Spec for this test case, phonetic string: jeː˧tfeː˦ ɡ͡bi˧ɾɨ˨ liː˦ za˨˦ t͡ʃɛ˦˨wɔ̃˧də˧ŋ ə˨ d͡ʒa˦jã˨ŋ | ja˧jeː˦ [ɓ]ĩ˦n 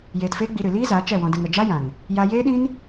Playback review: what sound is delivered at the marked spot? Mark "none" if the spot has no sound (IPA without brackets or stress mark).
ɗ